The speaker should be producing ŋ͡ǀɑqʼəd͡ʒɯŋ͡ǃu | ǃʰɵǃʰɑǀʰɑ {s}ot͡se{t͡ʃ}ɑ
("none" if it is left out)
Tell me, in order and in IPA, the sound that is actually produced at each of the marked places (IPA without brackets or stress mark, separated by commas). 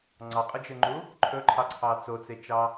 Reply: t͡s, t͡ʃ